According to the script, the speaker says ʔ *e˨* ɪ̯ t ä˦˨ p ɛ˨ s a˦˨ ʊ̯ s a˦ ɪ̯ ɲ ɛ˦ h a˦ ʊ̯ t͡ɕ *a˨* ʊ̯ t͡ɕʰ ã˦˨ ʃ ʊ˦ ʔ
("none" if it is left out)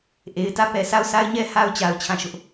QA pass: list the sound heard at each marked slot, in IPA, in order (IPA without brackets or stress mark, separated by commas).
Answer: e˨, a˨